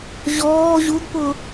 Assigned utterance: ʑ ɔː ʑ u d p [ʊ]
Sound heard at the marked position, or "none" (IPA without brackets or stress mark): ʊ